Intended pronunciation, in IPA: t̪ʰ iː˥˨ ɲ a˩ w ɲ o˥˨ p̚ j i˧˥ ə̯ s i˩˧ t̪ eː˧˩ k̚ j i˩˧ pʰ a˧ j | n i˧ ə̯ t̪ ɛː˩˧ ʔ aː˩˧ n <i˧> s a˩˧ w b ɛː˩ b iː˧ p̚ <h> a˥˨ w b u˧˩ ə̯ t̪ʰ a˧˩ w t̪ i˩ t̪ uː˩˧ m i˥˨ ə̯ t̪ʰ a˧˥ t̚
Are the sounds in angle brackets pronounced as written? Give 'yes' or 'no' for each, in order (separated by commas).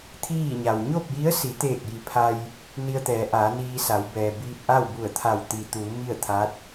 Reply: no, no